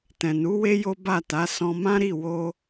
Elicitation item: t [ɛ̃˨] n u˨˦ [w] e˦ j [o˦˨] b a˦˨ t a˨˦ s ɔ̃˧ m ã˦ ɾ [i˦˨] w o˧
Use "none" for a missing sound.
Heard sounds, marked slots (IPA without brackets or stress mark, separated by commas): ɛ̃˨, w, o˦, i˦˨